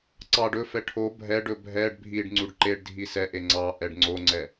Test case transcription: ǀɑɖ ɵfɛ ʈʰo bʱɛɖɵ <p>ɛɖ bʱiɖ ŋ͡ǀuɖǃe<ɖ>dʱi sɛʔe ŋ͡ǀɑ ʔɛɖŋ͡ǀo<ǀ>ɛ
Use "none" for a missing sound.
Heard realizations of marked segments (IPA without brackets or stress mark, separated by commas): bʱ, ɖ, ŋ͡ǀ